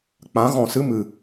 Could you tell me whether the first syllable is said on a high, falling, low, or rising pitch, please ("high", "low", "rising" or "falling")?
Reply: rising